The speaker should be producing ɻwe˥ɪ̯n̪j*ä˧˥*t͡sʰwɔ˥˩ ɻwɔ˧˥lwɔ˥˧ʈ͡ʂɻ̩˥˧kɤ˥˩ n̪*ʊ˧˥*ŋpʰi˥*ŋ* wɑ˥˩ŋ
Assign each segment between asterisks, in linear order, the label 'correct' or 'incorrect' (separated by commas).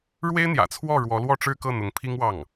incorrect, correct, correct